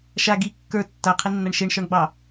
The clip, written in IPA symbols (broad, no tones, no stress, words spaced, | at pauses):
ʃa ɡi kːə˞ tːaqʰinːaɳ ʃeɳʃɔɳɡ͡bɑ